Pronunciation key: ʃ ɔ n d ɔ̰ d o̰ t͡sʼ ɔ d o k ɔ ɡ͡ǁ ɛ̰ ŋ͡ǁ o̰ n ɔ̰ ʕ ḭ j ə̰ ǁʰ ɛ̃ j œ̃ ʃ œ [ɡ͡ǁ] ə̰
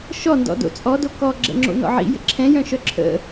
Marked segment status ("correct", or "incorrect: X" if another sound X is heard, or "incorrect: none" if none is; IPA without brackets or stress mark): incorrect: ǁʰ